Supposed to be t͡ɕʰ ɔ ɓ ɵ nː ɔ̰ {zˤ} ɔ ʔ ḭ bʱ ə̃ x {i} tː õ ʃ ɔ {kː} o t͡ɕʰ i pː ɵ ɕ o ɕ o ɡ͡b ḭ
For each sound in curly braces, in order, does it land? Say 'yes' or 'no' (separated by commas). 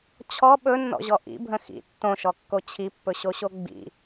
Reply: no, no, yes